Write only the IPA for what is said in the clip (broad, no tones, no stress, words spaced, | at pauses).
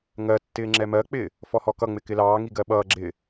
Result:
ŋɜtːɪː ŋ͡ǁɛmɜk͡pɪː | fɔhɔkʌŋ͡mɪ kɪlɑːŋi ɡɜɓʌːɡ͡ǁɪː